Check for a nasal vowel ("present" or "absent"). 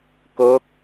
absent